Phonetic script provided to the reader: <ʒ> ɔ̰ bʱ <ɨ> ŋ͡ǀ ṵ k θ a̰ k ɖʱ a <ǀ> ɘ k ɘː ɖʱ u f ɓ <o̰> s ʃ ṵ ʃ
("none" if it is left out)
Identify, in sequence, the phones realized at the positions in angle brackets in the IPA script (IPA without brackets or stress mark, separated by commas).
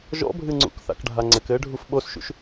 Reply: ʒ, ɨ, ŋ͡ǀ, o